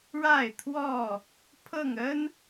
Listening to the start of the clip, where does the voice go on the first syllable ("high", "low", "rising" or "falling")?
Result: falling